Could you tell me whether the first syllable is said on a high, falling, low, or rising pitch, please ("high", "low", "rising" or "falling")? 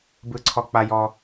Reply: high